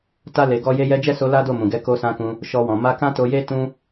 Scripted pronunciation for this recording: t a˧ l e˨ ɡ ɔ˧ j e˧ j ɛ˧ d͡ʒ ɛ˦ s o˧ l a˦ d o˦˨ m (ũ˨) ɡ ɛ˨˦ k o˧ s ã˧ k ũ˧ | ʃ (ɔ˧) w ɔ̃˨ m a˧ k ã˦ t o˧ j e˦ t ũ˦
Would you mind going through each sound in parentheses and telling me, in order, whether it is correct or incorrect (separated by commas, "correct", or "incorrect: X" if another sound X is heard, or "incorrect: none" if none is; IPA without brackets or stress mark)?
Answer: correct, correct